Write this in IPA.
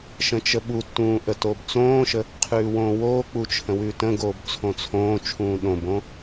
ʃə̃t͡ʃəɓutːũː ʔətoːbt͡sõːʃə | qʰʉːwõːwoːk͡pu t͡ʃʰə̃wʉːtə̃ɡoːb t͡sʰõt͡sʰõːt͡ʃʰũː ɗõbõ

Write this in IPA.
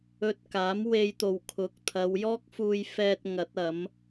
ɵ˧t̚ kaː˨˥mwe˧jt̪o˨wkʰʊ˨˥k̚ t̪ʰɐ˨˧wjɔː˥k̚fuː˧jfɛː˧t̚ ŋɐ˨˥t̚ɐ˨˥m

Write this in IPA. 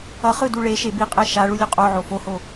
ʌχɯ duɭeʃe biqʼɛ ʃaɭu lʲoqʼoʕo foho

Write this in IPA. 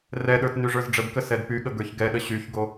rɛɗə˞t nyʐə˞zɖ͡ʐəbkə sɛdpyɠə ɡə˞çɡɛɗə ɕyçɡo

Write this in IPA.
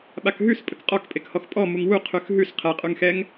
ɓakɦʉs pʼəkqʼɔkpʼekhɔx pʼɔ muŋwu qʰʉxɦʉs qʰɛqʼʉŋxɛŋ

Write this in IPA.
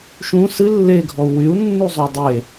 ʃũ sɨ lːeɡʱɔu̯ wyu̯nːuzˤo dˤe

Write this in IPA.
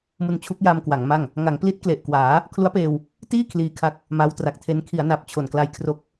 mu˧nt͡ɕʰu˦˥k̚ja˧mkwa˩˦ŋ ma˥˩ŋ | ŋa˩˦ŋpli˦˥t̚kle˨˩ʔ kwaː˩˦ | kʰlu˦˥a̯peː˧w | tiː˥˩ kʰliː˧kʰa˦˥k̚ | ma˦˥wtra˨˩k̚tʰe˦˥n kʰi˩˦a̯na˨˩p̚ t͡ɕʰo˨˩nkla˧jkʰro˦˥k̚

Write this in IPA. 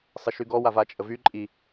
sˤəʃyɡɔ wavat͡ʃʼəvy ǃʼi

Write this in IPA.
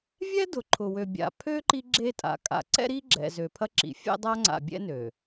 vʲɛ˦dʊ˨ ǃʰʊ˨wø˨bʲa̰˨pʰø˦ ǃi˦ɡ͡ǁe˦tʼa̰˨ kʼa̰˨ ǀɛ̰˦ɾi˦ɡ͡ǁɛ̰˨ zø˨pʰɐ˦ǁḭ˨fʲɛ̰˦ dˤa˦ŋ͡ǀa̰˨bʲɛ̰˦ nø˨

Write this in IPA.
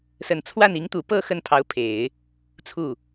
sə˨˩nt͡sʰwa˥˩n i˧˥ŋt̪u˨˩ pɤ˥˧ xə˥˩npʰɑ˧˥ʊ̯pʰe˨˩˦ɪ̯ | t͡sʰu˥˩

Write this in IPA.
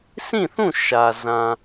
sʰĩ˦˨θũ˦˨ ʃä˨ zã˨

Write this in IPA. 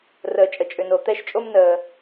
rəː˩t͡ʃʼə˩t͡ʃʼʏ˩no˩ t̪ɛ˥ʃt͡ʃʼo˥m nəː˩

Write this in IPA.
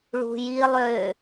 ɭṳji lˠø

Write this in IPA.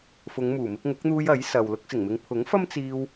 fʊ˨˧ŋmuː˨˩ mɪ˧k̚ŋʊ˨˥k̚n̪uː˧j ɐ˨˥jsɐ˨w lʊ˧k̚sɪ˨˩ŋmɪ˨ŋpʰʊ˨˥ŋ fɐ˥mt͡siː˧w

